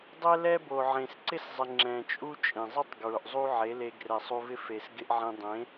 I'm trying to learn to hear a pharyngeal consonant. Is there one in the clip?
yes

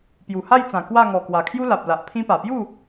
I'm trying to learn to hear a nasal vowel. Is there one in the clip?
yes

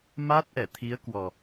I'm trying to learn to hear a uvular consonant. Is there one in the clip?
no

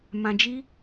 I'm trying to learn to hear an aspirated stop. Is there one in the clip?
no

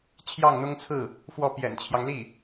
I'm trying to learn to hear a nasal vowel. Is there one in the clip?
no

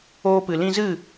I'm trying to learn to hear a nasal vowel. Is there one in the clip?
yes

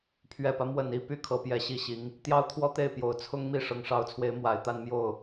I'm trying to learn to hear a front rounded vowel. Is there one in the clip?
yes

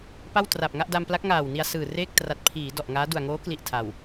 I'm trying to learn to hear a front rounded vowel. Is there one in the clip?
no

